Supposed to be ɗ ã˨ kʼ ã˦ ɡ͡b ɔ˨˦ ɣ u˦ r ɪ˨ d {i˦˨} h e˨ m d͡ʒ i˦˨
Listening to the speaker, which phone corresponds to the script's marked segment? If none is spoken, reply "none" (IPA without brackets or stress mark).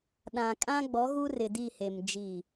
i˦˨